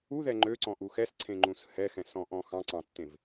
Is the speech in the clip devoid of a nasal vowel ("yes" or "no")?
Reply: no